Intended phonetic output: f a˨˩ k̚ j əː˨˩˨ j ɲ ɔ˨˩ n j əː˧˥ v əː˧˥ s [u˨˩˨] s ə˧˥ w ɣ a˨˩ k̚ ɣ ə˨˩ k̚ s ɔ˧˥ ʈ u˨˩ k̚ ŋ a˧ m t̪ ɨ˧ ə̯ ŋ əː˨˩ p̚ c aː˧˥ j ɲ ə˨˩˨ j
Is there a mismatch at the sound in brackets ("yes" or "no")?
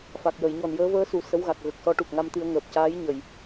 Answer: no